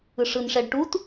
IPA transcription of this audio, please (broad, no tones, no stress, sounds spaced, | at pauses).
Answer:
ɯ ʂ ɯ n ʂ ɛ ɖ ʈ u t